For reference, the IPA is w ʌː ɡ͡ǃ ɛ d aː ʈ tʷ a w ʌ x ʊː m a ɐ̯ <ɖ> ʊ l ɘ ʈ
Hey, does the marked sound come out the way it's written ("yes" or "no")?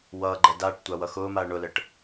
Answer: no